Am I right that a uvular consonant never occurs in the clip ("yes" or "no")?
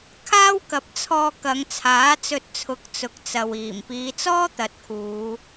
yes